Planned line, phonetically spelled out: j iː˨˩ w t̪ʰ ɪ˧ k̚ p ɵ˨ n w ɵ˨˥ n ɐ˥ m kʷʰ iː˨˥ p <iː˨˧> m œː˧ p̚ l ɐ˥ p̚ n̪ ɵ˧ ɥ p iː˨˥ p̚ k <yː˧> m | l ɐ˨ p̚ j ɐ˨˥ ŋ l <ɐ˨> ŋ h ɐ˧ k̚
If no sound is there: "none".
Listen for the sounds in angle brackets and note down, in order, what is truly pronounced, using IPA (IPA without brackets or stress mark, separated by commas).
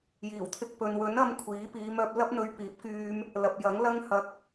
iː˨˧, yː˧, ɐ˥